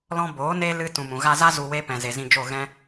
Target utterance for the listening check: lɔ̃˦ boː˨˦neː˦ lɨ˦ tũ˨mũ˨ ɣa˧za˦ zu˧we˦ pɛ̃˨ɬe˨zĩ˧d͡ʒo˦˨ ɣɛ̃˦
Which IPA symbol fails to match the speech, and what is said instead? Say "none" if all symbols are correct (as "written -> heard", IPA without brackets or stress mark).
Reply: ɬ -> z